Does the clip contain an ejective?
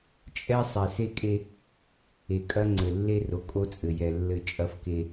yes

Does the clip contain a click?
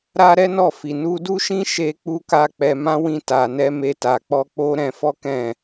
no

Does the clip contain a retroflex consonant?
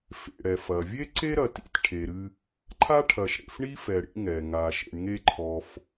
yes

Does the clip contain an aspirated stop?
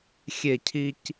yes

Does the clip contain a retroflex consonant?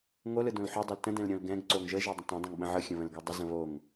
no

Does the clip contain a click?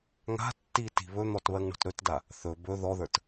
no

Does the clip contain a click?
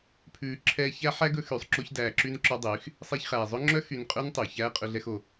yes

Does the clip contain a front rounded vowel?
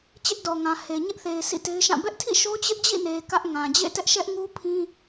no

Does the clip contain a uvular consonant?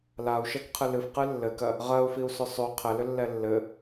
yes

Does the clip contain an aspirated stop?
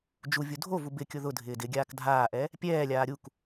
no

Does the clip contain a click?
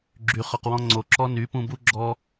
yes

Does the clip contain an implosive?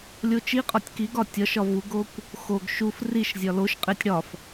no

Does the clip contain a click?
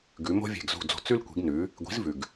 no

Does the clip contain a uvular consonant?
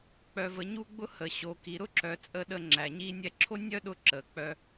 no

